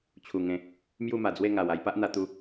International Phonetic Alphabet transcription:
t͡ɕʰ u˨˩ ŋ ẽ˨˦ | m j u˥˧ m a˨˩ d͡z w e˥˧ ŋ a˨˩ w a˧ j p a˦ ʔ n̪ a˧ t̪ u˧

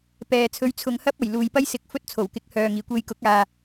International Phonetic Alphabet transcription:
p ɛː˨˧ t͡sʰ ɵ˧ ɥ t͡sʰ ʊ˨˧ ŋ h ɐ˥ p̚ ɐ˨˩ j l uː˨ j p ɐ˥ j s ɪ˨˥ k̚ f ɵ˥ t̚ t͡sʰ o˨˩ w k ɪ˨˥ k̚ h œː˨ ŋ iː˨˩ kʷ e˧ j k ʊ˨˥ k̚ aː˨

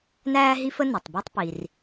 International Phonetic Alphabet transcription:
n æː˥ ɦ i˥ f ə˥ n i˩ tˤ b ɔ˥ tˤ p i˩ r

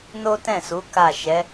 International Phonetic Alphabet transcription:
n o˦ t ɛ̃˦˨ s u˨˦ k a˦˨ ʃ ɛ˨˦

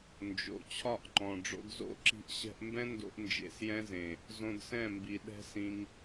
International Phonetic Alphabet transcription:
n d͡ʒ o̰˨ t͡ɕʰ ɒ˦˨ ʔ ŋ͡ǃ ɔ̃˨ ɖ͡ʐ o̰˧ d z o̰˦˨ ǁ i̤˧ ʔ ɕ ɛ̤˧ ʔ m b ɛ̃˦ n d o̰˧ ʔ n d͡ʒ ḛ˧ s j ɛ̃˦ z ẽ˨ | z õ˧ d s ɛ̃˦˨ m b i˨ ɗ ɛ̤˦ s ĩ˧ ŋ

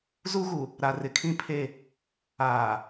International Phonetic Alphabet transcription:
z u˦ ɣ u˨ | ɾ a˨ r ɪ˨ kʰ ĩ˦ pʰ e˦˨ | aː˨

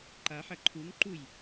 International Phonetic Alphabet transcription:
ǃ a ħ ɐ ǃʰ u ŋ ǃ u j

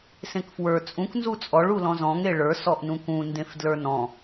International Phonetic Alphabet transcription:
s ẽ k f w ə˞ t͡sʼ ũ k n z u t͡sʼ ɔ ɭ u l ɔ̃ z ɔ̃ ŋ e ɭ ə˞ s ɔ ʔ n ũ k ũ n d ẽ f d l ə˞ n ɔ̃

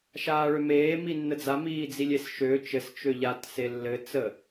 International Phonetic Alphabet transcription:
ʃ aː ɭ ø m eː m i nː ə d͡z a m iː d͡z i lʲ e s ʃ ø t͡ʃ ɘ s t͡ʃ ø ʎ a t s e lː ɘ t͡s ə

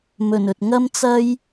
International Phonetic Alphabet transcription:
m ɵ˨˩ n ɵ˨ t̚ ŋ ɐ˥ m t͡s ɐ˥ j

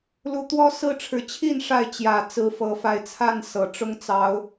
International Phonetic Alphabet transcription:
l u˨˦ t̪ w ɔ˦ s ɹ̩˥˨ ʈ͡ʂʰ ɻ̩˨˩ t͡ɕʰ i˥˨ n ʂ a˥˨ ɪ̯ t͡ɕ j ä˨˩ t͡s ɹ̩˨˦ f ɤ˨˩ f a˨˦ ɪ̯ t͡sʰ a˥˨ n s ɤ˨˩ ʈ͡ʂ ʊ˦ ŋ t͡s ɑ˨˦ ʊ̯

